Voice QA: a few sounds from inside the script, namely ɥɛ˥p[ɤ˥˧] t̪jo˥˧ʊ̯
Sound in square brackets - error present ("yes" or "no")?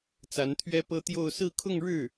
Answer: yes